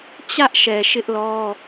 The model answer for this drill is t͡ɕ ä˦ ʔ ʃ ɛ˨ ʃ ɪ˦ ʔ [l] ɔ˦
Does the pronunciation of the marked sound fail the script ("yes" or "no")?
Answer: no